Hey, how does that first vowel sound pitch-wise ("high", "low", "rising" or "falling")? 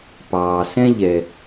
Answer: low